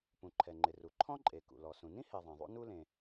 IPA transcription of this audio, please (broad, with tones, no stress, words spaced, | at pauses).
pũ˩ǃʰɛ˩ŋ͡ǃɪ˩ ru˩ ǃʰɔ̃˥ǃʼe˩ kṵ˩lɔ˩ sũ˩nĩ˥ he˩ ðˤɛ̃˩ðˤṵ˥nu˥ lẽ˩